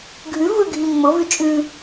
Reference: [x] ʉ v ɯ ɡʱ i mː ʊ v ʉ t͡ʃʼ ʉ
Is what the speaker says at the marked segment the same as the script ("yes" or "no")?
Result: no